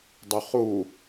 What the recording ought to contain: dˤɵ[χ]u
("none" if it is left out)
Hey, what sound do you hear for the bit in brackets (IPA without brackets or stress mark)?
χ